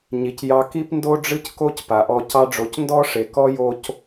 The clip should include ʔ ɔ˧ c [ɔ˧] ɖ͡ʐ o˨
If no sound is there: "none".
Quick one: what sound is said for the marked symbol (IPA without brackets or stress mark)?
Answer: ɑ˧